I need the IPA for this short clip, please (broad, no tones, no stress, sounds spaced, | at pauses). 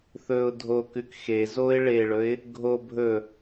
θ ɵ ʊ̯ dʱ o k ʉ k x e z o ɪ̯ ɭ e ɭ ɵ ɪ̯ | ɡʱ o bʱ ɵ